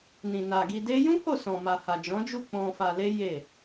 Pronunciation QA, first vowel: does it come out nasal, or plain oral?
nasal